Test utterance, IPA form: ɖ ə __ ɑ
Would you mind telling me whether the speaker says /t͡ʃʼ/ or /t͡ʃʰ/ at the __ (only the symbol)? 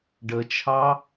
t͡ʃʰ